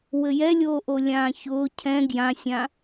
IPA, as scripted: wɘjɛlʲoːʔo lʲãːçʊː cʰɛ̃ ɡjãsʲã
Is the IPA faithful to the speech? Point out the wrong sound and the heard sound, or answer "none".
none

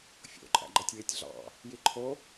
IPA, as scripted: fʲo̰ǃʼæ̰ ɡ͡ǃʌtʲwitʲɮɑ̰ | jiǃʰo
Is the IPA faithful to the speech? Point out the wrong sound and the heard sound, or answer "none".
none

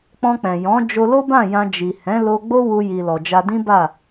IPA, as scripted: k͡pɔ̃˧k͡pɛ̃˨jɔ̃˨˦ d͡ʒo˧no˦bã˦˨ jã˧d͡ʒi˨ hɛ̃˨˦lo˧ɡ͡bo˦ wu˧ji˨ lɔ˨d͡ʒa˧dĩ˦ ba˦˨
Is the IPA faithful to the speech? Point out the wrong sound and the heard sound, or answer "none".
n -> l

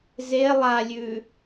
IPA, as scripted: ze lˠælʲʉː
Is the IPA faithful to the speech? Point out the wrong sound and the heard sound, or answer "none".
æ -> a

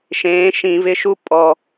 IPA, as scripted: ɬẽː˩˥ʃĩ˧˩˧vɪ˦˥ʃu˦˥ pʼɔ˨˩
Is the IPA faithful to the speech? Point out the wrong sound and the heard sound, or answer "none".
ɬ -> ʃ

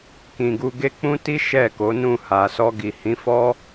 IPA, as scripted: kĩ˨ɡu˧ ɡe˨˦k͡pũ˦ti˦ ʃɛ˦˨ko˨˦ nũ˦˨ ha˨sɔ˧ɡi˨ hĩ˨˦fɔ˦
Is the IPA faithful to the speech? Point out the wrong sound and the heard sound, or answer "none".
e˨˦ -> e˧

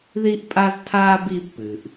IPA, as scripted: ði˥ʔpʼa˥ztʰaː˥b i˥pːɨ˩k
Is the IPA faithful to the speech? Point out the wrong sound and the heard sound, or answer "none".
k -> ʔ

